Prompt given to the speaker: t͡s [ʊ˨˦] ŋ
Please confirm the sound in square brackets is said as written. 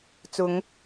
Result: yes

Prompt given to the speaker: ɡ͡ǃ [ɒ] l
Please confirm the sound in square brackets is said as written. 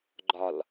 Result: yes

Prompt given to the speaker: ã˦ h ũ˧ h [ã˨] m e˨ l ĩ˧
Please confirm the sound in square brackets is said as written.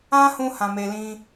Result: yes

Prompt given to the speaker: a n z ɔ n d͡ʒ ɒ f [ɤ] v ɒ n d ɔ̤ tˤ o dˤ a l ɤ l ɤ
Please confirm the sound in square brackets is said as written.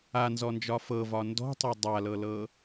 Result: yes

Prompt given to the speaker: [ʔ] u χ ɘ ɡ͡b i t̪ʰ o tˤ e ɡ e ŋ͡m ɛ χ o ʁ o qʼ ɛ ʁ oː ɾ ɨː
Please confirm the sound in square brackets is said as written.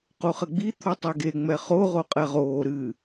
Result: no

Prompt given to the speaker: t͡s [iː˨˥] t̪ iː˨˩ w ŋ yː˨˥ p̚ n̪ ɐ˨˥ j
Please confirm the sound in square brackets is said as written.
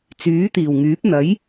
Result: no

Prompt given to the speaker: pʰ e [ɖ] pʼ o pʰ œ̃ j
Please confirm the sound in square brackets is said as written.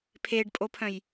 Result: yes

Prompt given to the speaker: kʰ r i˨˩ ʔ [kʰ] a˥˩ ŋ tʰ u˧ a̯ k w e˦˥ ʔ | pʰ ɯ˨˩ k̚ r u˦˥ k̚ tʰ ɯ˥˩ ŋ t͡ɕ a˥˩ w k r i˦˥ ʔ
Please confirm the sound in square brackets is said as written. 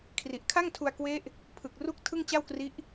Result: yes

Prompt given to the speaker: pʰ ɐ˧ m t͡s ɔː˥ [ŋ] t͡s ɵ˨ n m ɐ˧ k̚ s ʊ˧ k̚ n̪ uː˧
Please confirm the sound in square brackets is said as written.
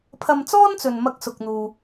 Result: no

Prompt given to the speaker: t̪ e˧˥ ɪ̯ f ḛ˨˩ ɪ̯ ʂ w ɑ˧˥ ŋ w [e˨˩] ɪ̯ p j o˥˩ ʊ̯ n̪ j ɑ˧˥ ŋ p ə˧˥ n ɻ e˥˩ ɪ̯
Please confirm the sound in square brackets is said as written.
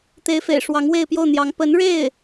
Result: no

